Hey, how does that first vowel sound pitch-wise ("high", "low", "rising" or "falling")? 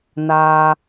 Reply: high